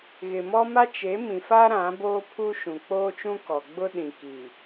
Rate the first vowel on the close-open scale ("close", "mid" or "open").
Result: close